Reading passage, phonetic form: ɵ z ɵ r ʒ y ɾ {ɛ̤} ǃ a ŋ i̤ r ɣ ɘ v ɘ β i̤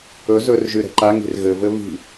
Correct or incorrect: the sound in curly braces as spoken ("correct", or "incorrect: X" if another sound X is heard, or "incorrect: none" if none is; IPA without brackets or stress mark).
correct